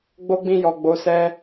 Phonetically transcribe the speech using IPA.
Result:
ɡ͡bo˦ɡ͡bĩ˦˨jɔ˨ ɡ͡bo˨˦sɛ˦

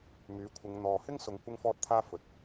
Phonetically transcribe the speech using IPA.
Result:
myː˨˥kʷʰɪ˨˧ŋ n̪ɔː˨ hɪ˥ŋsʊ˨˧ŋ kʷɪ˥ŋfɔː˥t̚t̪ʰaː˥ fɵ˨t̚

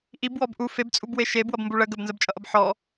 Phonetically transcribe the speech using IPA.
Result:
ʔibwɔb ʔu febt͡sʼubwe ʃeb wʌbmbuɭə ɡəbnzəbt͡ʃʼʌʔʌb ħɔ

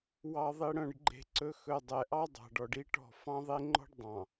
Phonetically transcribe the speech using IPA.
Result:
wɑ˨ðˤi˨ɽœ̃˨ɖ ɡ͡ǃe̤˦ǀɵ˦ xɵ˨dˤɛ˨ ʔɑ˦dˤɑ̤˨ɖɔ˨ɖ i˦ʈɔ̤˦˨ fɑ̃˦ðˤe˦ŋ͡ǃɔ̤˦ɖ dˤɑ̃˨

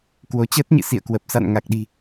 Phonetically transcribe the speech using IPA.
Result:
kwo˨˦t͡ɕəː˦˥t̚ɲɨ̰˧˨ sḭ˧˨ə̯kwə˨˩p̚ sa̰˧˨nŋa˨˩k̚ɗi̤˨˩

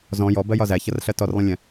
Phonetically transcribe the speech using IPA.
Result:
zɔ̃ jɔbɜjɒ zæçʌrɬɜ tɔrlˠə̃lʲɛ̃

